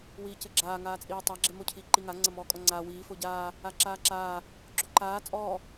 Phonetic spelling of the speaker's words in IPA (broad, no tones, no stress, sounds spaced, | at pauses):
w iː c ɘ ɡ͡ǁ aː ŋ aː t͡sʼ iː tˤ a ɡ͡ǁ e m o cʰ iː ǃ i ŋ a ŋ͡ǀ ɐ m ɔː kʼ ɔ ŋ͡ǀ aː w iː f o ɟ aː | a ǁ aː ǁ aː | ɡ͡ǁ o ǃ aː t͡sʼ ɔː